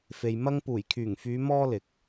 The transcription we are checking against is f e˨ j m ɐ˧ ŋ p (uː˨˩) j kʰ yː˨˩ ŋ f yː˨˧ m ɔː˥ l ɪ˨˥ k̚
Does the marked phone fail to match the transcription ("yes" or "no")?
no